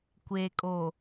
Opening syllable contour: low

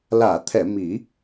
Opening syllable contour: low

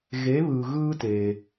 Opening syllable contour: rising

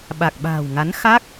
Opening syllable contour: low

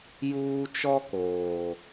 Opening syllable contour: high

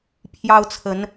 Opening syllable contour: high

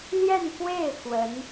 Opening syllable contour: falling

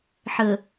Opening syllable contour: low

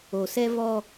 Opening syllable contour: low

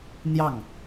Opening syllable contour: falling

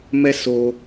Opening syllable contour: high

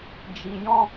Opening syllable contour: low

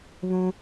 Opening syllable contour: high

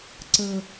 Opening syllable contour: high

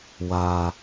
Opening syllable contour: high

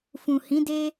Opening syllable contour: low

